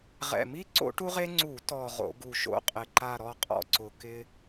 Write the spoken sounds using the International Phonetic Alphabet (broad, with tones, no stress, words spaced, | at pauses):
ʁɛ̰˨˩mi˦ ǀo̰˦ʈu˦ʁe˦ ŋ͡ǀu˧˩˧tɔ˨˩ ʁo̰˧˩˧ɡu˨˩ʃo̰˦ qʼɪ˨˩ǃa˦˨ ɾɔ˦˨qʼɔ̰˦˨ǀʊ˨˩ kɪ˦